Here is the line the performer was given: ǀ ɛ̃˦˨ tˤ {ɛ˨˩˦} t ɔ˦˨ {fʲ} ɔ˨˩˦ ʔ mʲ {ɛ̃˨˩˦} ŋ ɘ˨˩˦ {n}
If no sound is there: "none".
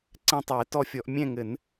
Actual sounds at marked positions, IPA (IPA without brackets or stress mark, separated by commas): ɛ˨˩˦, fʲ, ɛ̃˦˨, n